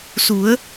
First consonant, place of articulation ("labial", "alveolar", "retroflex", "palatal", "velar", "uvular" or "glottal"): alveolar